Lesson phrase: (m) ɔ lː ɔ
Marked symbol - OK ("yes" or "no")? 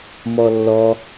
yes